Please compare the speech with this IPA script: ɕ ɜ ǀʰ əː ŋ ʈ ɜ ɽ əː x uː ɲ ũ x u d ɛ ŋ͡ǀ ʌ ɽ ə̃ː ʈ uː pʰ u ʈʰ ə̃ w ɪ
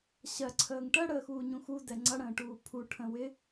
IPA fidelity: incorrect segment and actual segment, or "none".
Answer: none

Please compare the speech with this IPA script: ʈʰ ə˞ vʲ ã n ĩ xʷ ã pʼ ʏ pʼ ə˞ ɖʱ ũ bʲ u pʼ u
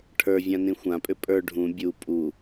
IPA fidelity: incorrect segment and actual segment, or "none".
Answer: none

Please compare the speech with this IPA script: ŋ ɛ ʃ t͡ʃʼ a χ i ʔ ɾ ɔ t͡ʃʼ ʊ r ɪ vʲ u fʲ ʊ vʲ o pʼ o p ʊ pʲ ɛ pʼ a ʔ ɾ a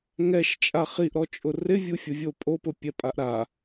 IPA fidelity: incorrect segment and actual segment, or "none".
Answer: none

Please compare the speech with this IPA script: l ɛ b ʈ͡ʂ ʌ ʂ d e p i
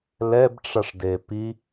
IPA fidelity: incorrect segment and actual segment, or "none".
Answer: none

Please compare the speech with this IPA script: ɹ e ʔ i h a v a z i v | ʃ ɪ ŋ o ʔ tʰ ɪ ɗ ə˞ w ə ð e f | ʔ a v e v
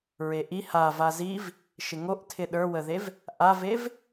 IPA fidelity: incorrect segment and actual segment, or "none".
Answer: f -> v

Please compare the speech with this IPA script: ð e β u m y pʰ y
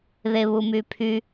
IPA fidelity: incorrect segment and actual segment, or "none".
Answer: none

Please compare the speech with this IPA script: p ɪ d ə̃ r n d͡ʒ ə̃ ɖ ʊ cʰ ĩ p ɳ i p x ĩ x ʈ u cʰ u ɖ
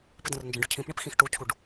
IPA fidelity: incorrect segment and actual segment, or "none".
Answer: none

